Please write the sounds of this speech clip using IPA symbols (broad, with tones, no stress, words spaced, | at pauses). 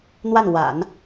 n̪wa˥˩nwa̰˨˩˦n